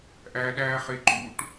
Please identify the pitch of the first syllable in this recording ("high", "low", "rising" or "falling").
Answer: high